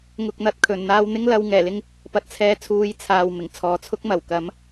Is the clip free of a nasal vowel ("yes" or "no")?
yes